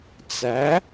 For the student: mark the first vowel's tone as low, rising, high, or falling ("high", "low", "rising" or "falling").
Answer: rising